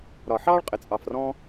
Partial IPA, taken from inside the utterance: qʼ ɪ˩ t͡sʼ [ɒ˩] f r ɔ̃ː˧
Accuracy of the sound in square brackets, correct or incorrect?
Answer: incorrect